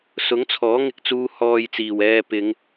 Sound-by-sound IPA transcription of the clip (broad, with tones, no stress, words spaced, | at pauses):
sʊ˨˥ŋt͡sʰɔː˨˥ŋɪ˧k̚t͡suː˧ hɔː˧jt͡siː˨˩wɛː˧pɪ˨˧ŋ